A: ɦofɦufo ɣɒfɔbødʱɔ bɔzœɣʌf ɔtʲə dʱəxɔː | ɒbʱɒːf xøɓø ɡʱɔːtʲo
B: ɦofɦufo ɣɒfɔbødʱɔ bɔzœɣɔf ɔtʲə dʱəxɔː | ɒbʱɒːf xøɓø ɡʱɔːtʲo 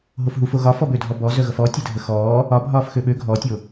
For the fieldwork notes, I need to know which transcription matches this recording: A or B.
A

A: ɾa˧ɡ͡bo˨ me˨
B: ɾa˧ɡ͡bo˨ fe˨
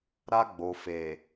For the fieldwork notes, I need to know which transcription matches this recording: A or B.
B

